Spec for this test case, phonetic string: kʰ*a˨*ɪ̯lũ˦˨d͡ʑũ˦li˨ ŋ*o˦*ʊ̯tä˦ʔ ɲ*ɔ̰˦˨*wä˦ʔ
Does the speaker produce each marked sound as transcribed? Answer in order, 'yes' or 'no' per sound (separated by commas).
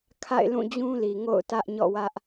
no, no, yes